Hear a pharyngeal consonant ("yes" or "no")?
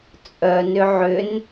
yes